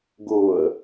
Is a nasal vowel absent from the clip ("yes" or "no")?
yes